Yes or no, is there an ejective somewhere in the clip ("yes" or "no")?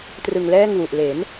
no